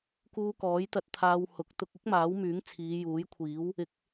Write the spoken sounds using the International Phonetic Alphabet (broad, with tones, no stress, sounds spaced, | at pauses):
k uː˧ k ɔː˨˥ j t̪ ɐ˧ t̚ t̪ʰ aː˧ w h ʊ˨˥ k̚ t̪ ʊ˧ k̚ ɪ˥ k̚ m aː˨˥ w m yː˨˥ ŋ t͡sʰ iː˨˧ j uː˨˥ j kʷʰ iː˨˥ w | ɪ˨˥ k̚